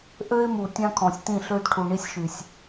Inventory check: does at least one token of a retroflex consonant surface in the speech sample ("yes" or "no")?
yes